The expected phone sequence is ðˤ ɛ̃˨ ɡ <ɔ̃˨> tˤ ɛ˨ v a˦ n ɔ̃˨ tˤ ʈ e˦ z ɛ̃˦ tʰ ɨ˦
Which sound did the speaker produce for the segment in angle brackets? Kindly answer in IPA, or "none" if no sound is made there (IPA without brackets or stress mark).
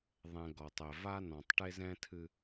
ɔ˨